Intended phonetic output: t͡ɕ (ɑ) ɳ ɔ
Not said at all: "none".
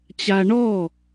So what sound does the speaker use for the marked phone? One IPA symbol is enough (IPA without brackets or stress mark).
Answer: a